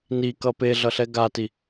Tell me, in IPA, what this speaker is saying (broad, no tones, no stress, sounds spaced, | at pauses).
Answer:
n i k ʌ p e ɮ ʌ ɬ ɛ ɡ a t i